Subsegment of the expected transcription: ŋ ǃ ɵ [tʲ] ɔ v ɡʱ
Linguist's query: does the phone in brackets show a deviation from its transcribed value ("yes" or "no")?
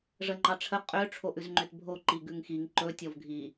no